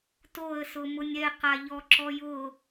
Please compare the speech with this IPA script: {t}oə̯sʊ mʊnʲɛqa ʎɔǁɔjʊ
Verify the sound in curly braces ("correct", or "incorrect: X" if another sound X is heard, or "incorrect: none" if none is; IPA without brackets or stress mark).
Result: correct